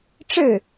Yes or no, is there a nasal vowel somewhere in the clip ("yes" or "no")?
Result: no